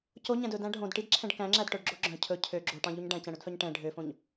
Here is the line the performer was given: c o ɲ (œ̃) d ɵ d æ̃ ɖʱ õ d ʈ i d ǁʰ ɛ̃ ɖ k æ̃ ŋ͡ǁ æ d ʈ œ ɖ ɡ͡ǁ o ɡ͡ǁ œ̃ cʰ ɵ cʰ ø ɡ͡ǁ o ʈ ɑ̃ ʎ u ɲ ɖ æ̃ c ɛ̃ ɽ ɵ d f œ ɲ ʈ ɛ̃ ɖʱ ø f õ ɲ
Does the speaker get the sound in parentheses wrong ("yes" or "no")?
yes